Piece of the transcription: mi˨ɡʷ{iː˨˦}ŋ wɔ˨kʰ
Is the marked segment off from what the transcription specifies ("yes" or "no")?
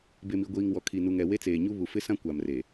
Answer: yes